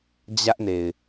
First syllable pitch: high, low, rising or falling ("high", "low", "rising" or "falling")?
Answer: high